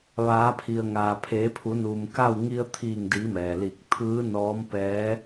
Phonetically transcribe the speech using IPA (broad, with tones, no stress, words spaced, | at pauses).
ʋaː˩˧pʰi˩ə̯ŋaː˩ pʰeː˩˧pʰu˩˧ nuː˩mka˥˨w ŋi˧ə̯t̪ʰiː˧˩ŋdiː˩˧ mɛː˩liː˧˩k̚ t̪ʰɯː˧˥ nɔː˧˥m pɛː˧˥